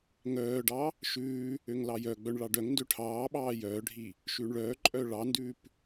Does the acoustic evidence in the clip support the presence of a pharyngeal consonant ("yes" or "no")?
no